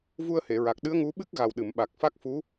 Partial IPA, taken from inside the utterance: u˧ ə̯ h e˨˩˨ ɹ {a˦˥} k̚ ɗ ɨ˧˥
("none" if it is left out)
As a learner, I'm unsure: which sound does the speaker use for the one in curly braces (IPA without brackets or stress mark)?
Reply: a˨˩